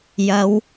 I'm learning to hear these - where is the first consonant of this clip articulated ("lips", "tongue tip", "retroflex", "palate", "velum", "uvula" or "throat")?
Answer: palate